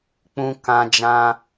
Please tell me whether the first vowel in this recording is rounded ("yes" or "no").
yes